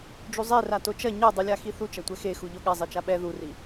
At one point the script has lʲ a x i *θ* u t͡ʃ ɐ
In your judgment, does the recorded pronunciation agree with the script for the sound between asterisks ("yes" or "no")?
yes